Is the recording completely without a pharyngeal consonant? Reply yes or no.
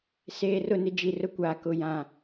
yes